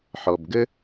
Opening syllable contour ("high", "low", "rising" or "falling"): low